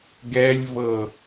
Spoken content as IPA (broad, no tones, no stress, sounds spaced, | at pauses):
ɡ ɛ lʲ v ɤ